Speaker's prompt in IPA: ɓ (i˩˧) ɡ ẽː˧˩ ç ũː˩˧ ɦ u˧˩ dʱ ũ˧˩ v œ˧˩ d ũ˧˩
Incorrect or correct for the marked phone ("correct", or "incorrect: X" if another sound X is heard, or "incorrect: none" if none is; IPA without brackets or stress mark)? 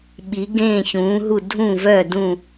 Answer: correct